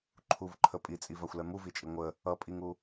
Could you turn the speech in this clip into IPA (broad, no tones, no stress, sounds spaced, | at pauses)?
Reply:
ǃʰ u v ǃʰ ə pʼ i t͡sʼ i v a xʷ l ɛ m u v i t͡ʃʼ i ŋʷ ə | ʌ pʼ i ŋ u